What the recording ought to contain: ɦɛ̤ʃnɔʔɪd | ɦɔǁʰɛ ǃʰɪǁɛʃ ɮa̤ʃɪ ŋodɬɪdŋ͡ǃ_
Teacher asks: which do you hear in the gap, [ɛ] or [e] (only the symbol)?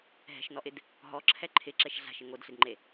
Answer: e